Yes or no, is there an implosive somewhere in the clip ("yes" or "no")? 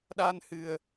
yes